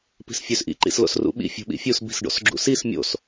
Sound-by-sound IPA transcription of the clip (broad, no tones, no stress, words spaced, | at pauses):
pi̤sfʲøsʔḭ ǃḭslo̰srṵɓḭ fʲṳɓḭfʲus bi̤sɖo̰sɡ͡ǁṵsis mʲo̰s